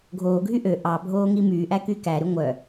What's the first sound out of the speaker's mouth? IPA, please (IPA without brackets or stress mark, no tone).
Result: ɡʱ